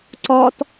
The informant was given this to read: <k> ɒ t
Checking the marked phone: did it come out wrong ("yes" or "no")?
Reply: yes